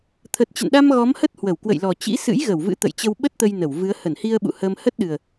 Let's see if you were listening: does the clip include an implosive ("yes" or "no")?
yes